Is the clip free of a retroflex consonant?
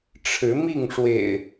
no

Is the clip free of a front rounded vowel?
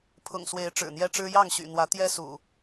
no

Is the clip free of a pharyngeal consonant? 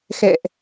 yes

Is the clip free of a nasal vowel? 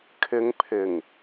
yes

